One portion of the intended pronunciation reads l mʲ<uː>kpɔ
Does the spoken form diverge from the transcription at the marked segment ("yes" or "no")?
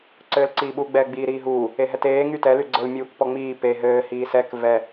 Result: no